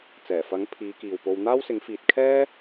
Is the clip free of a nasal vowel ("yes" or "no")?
yes